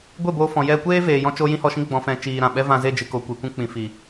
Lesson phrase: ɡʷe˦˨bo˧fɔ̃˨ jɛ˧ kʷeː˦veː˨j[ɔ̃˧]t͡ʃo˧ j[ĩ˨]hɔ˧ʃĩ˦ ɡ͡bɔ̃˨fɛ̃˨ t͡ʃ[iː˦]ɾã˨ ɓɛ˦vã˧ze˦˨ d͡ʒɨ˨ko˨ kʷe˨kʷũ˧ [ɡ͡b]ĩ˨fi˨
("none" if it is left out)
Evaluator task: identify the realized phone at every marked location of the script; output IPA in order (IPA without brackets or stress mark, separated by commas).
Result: ɔ̃˧, ĩ˦, iː˧, k͡p